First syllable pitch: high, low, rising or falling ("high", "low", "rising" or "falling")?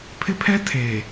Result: high